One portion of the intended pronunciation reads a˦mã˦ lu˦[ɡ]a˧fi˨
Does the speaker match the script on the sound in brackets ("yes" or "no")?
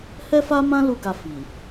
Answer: yes